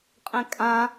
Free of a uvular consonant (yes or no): no